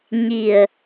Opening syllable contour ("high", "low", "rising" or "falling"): low